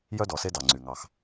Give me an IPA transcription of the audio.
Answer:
jœ˦dɔ˨se˦ dɑ˨ŋ͡ǀy˨ŋɑ˦x

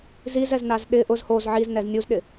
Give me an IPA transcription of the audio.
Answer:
zizɛznaz ɗɪ ʔʊz hoz ʕiznɛz nʲuzɗɪ

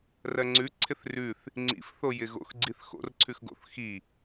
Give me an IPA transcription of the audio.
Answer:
rɜŋ͡ǀʉǀʰɪθ rʉθ | ŋ͡ǀḭf θojɪɣo̰x ɡ͡ǀiθxo̰r ǀʰʉxɡo̰θ xi

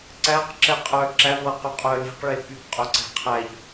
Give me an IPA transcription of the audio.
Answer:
ǀæq ǁɛqʼœ ǁævɤ qyqʼœle̤qɭe pykqʼœ ǀæ̤qʰæʎ

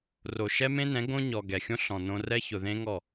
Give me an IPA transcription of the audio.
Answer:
ro˨ʃɛ˦mẽ˦nɛ̃˨˦ ɡõ˦ɲɔ˨ ɡɛ˨xʲõ˦ ɬɔ̃˨ nõ˧rɛ˦ çʊ˨ðẽ˦ŋɔ˦˨

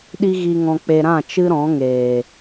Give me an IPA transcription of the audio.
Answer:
ɗi˦ɣi˧ŋɔ̃˧k͡pe˧ ɾã˦˨t͡ʃɨ˦ ɾɔ̃˨˦ŋeː˨

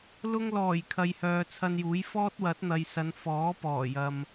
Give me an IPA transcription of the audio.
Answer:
lʊ˧ŋlɔː˨˩j kʰɐ˨jhœː˨t͡sʰɐ˧njuː˨˥j fɔː˥t̚wɐ˨˥t̚n̪ɐ˨jsɐ˨˧n fɔː˨˥pɔː˨˩jɐ˨m

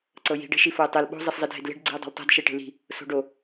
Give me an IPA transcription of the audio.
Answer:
ǀɤji̤ ɖe̤ʃifoɪ̯tˤel ɓo̤ zˤeszˤidʱedle̤ɖ ɡ͡ǀi̤ʊ̯dˤo̤ltˤe̤d ʃeʈe̤li̤ | so̤ɖo

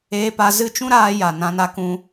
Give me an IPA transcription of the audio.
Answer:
eː˧pa˧zɨ˦˨ t͡ʃũ˦ɾaː˧ja˨ nã˧na˧kũ˧

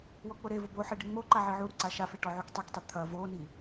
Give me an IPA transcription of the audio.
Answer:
wɔk͡pʊɾevʊ boħe ɖiŋ͡moǃa ʕiʕuɾu ǀaʃafe ʈɔʕuktˤiktˤi t̪ʰɐ voni

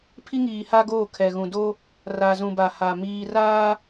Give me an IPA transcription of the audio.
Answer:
pʰi˦ŋiː˨ ha˦ɡoː˦˨kʰɛ˨ɣũ˨ do˦ | ra˨zũ˨ba˨ ha˨miː˦ raː˦

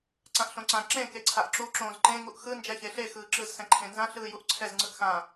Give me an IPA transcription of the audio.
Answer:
ǀãʔɬõǀã ǁẽ keǀʰaʔǁu ǁõːzǃẽ ŋuʔxɯ nd͡ʒɛçeɬe xɯːǁɯz sɛ̃ǃʰẽnzã ɬɯːjuʔǀʰɛz ŋ͡ǀɯʔxã

